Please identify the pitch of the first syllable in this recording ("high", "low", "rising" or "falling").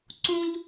high